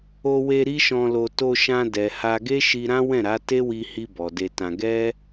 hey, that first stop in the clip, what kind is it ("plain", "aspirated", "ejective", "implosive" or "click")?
plain